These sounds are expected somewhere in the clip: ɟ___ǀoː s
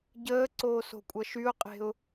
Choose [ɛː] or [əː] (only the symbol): əː